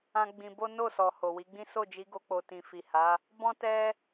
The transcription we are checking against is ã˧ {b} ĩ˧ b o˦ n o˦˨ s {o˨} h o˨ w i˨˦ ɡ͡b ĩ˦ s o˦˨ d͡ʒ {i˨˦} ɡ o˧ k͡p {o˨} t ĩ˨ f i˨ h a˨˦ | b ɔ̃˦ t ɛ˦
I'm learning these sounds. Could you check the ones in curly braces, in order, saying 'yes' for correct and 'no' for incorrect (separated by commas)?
no, no, yes, yes